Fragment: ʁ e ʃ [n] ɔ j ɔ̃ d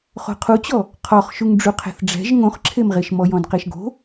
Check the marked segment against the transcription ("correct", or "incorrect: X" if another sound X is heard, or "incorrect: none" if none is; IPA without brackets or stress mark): incorrect: m